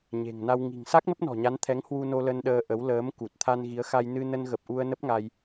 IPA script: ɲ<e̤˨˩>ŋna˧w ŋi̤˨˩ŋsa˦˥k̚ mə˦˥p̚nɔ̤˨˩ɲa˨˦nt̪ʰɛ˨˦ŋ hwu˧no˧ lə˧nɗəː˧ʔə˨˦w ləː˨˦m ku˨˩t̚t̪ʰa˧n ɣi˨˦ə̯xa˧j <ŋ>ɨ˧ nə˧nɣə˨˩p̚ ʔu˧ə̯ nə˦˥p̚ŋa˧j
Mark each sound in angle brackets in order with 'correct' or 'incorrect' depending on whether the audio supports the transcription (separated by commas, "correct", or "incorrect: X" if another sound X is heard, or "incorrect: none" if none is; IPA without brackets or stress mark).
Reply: correct, incorrect: n